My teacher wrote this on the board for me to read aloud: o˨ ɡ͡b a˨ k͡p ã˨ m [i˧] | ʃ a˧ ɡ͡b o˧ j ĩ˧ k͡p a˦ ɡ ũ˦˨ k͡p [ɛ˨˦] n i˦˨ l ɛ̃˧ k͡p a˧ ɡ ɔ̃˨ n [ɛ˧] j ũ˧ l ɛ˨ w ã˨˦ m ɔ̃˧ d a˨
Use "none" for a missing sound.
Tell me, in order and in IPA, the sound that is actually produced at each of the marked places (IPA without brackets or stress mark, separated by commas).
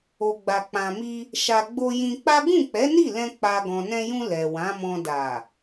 i˧, ɛ˨˦, ɛ̃˧